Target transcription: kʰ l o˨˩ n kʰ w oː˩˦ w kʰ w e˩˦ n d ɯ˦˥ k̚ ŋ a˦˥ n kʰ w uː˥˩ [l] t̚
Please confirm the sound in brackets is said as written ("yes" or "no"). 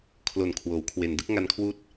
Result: no